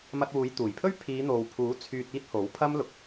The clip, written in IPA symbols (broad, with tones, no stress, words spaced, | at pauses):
mɐ˧t̚wuː˨˧jt̪uː˨˩jpʰɵ˥ɥ pʰiː˨˧n̪o˨wpʰuː˨˥ t͡sʰyː˧t̚iː˥t̚ ho˨˥wpʰɐ˥m lʊ˨k̚